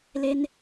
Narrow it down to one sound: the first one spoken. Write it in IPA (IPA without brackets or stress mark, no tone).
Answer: l